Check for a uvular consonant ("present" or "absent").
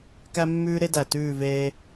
absent